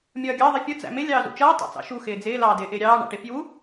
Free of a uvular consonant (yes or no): yes